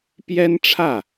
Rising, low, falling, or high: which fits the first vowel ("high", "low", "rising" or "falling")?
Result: high